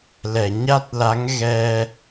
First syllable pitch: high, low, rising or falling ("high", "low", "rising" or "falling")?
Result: low